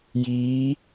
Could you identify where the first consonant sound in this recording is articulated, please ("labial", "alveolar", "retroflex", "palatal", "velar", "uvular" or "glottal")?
palatal